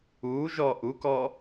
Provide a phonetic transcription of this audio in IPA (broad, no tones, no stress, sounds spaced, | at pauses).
uː ʒ ɔː ʔ u k ɔː